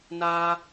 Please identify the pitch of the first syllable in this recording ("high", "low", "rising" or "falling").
high